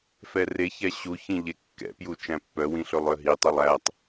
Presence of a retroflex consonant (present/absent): absent